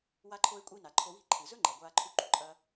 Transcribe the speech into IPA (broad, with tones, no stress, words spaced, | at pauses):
wa˧ǃʰo˧ɪ̯kʷʼi˧ na˩ǃʰo˧wi̤˥ ǃʰɨ˩zɵ˥ŋ͡ǃɐ˩ ɡʷaː˧ǃʰu˧ǃṳ˩ ǃʼɐ˧